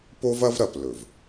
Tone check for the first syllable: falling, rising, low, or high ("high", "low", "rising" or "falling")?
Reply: high